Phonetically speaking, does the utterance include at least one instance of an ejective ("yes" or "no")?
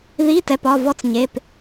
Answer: no